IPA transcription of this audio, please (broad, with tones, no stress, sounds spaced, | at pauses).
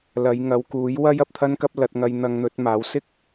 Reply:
l ɐ˨˧ j ŋ ɐ˨˧ w k uː˨˥ j w ɐ˥ j ɐ˨ p̚ t̪ʰ ɐ˥ n k ɐ˥ p̚ l ɐ˧ t̚ ŋ ɐ˧ j n̪ ɐ˧ ŋ n̪ ɵ˨˥ t̚ m aː˨˥ w s ɪ˥ k̚